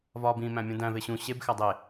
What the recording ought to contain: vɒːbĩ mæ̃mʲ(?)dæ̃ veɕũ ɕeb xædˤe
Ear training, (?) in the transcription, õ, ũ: õ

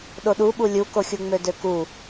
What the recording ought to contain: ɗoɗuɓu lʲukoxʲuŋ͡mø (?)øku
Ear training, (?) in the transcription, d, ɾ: d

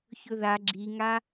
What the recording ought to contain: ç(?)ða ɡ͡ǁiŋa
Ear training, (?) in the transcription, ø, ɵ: ɵ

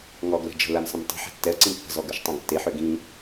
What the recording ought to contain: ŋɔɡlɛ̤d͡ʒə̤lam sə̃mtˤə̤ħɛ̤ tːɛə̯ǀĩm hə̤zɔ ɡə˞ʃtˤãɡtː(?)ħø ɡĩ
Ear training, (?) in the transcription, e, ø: e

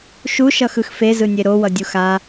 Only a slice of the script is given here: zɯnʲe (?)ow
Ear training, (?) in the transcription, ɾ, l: ɾ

